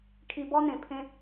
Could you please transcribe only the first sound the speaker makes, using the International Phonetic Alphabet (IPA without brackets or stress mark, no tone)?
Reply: kʰ